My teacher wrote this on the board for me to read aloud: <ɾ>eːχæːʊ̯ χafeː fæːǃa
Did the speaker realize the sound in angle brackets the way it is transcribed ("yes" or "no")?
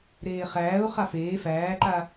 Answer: yes